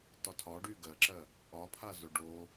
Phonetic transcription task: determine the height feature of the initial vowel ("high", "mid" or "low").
low